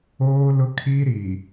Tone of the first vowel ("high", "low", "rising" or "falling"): high